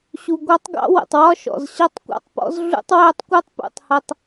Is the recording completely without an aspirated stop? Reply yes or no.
yes